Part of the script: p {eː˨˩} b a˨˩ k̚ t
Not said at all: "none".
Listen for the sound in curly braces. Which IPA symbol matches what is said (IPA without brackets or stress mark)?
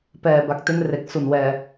ɛː˨˩